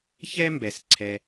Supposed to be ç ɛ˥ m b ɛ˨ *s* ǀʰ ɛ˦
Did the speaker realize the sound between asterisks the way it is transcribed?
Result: yes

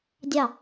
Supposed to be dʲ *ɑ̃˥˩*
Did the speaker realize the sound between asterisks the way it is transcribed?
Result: no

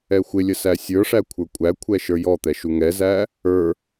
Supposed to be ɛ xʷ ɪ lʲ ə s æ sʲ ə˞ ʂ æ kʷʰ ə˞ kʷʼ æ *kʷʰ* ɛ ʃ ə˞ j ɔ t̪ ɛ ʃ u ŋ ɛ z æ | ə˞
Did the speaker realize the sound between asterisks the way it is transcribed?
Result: yes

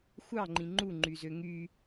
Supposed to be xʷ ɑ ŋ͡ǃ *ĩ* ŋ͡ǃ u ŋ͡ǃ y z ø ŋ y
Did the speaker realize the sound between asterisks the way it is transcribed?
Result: yes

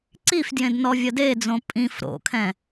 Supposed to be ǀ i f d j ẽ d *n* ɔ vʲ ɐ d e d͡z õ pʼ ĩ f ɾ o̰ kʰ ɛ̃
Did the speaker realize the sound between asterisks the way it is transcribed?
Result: yes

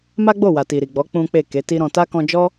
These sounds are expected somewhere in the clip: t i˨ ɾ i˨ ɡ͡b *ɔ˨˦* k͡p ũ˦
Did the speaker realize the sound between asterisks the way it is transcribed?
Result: yes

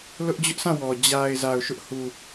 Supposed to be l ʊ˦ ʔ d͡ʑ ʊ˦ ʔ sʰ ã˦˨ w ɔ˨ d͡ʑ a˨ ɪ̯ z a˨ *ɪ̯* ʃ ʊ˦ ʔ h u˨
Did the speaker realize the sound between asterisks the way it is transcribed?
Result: no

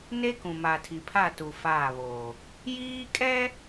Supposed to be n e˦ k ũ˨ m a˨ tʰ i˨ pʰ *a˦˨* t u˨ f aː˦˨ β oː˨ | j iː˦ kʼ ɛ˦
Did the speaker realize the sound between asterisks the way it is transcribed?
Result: yes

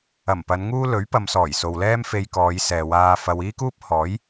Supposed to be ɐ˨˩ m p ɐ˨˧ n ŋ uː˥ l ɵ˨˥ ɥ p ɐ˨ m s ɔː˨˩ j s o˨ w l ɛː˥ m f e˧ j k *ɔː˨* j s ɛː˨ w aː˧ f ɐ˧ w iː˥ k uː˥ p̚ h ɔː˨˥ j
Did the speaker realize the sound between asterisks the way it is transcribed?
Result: no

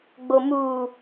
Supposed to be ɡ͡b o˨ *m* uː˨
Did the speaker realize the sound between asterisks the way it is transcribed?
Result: yes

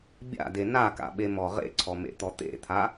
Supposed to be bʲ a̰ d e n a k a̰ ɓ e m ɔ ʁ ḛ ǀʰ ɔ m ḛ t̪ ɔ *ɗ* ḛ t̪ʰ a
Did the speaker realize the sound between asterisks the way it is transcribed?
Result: no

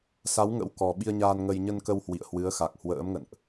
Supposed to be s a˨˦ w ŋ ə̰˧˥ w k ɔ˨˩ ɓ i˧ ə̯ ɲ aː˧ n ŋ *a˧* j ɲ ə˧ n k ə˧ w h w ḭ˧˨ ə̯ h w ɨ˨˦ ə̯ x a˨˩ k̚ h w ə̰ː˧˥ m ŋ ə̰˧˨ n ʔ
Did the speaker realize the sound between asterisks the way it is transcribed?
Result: no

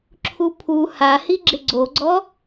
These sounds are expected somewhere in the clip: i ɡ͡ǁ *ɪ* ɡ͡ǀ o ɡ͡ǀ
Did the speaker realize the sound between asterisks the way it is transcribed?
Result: yes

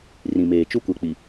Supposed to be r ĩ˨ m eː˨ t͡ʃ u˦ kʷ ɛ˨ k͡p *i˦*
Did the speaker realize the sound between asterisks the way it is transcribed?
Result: no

